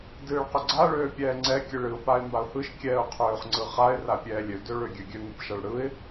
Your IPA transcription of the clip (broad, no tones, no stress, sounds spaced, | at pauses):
d ɨː ɭ q ʏ ɡ͡ǀ a ɭ øː pʲ ɛː ŋ͡ǀ ɛ kʲ ɨ ɭ ɨ ʊ̯ p a ɪ̯ m b a ʊ̯ h ɯ ʃ kʲ ɛː ʊ̯ qʰ øː χ ŋ͡ǀ ɯ χ a ɪ̯ r a pʲ ɛː lʲ ø d ø ɭ ø ɡʲ ø ɡʲ ø ŋ ɯ p ʃ a ɭ ɽ ɯ ɪ̯